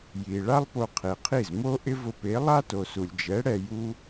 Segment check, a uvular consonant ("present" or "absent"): present